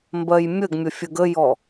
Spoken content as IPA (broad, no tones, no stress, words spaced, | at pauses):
mbɜjmʲəɡ mʲəfʲəɡəjɔ